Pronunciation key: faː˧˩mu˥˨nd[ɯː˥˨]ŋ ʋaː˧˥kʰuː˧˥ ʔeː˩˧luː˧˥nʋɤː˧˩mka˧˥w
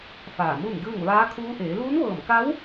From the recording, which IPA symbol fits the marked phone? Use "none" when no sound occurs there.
ɯː˥˨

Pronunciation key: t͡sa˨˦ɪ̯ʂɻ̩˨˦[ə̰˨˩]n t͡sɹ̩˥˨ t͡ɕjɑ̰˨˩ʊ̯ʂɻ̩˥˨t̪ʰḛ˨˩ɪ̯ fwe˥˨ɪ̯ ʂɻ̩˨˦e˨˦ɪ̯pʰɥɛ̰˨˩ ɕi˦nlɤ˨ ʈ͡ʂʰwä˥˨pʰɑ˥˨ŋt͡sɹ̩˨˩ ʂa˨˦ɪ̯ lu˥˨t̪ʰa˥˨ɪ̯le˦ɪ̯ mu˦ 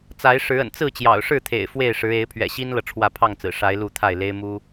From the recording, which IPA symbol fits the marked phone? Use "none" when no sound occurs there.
ə̰˨˩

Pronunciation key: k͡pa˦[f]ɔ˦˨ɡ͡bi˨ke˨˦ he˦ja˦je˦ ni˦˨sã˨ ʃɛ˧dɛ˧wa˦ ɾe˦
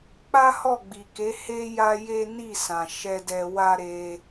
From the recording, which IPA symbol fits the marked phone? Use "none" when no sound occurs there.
h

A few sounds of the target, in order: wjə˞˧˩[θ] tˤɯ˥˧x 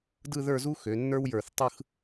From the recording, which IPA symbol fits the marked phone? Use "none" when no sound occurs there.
θ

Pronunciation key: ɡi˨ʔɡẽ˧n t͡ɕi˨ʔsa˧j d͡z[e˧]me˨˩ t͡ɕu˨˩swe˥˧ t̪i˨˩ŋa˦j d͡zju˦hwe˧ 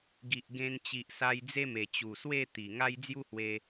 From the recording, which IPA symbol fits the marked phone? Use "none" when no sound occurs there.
e˦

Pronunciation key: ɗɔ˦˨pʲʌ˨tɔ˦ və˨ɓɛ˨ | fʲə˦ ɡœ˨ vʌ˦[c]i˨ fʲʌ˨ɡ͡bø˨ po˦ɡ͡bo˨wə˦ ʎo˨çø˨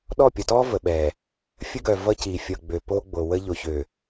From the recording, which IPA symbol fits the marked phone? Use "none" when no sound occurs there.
c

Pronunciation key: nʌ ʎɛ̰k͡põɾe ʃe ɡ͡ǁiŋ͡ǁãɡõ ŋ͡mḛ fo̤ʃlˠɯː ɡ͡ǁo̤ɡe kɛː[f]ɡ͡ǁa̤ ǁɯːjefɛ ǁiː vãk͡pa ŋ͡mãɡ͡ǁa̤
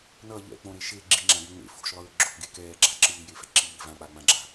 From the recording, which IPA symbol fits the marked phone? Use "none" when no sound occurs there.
none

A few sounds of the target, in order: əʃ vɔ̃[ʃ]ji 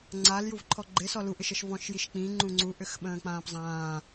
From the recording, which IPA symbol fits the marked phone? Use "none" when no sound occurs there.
ʃ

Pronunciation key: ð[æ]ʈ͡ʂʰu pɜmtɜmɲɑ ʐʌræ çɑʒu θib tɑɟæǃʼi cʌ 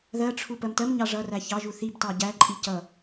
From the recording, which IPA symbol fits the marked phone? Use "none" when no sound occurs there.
ɜ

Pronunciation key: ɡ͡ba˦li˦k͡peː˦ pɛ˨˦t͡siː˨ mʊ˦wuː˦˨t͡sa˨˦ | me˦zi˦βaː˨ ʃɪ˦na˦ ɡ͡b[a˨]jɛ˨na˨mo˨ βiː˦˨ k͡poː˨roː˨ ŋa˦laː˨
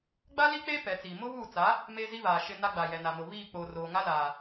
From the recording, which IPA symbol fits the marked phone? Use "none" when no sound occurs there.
a˨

